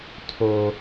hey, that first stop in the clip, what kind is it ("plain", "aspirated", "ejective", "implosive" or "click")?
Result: aspirated